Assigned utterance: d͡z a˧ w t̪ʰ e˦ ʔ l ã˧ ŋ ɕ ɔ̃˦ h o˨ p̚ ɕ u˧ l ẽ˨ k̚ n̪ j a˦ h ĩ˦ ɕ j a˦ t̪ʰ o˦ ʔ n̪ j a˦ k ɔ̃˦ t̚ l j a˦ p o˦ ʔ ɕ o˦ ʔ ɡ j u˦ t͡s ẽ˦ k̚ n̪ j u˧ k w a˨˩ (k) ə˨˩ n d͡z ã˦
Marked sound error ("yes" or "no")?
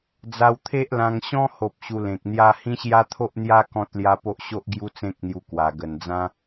yes